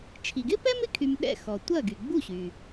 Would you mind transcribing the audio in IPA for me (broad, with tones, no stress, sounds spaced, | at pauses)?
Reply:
t͡ʃʰ i˩ ɡ ɪ˥ p ɛ˥ m ɪ˥˩ kʰ y˧ m ɗ ɛ̰˥˩ x ɔ˩ tʷ ɐ˥˩ ɡ y˩ ɡ͡b u˥˩ ɕ y˩